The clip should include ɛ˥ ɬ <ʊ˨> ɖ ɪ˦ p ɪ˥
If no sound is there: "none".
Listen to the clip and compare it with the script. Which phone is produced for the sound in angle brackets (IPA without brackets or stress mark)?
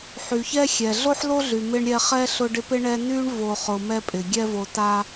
ʊ˦